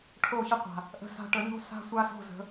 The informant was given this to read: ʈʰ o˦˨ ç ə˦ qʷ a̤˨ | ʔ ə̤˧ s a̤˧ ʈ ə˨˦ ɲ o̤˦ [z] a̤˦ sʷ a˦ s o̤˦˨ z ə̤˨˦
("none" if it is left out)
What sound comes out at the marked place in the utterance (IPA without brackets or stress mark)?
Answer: s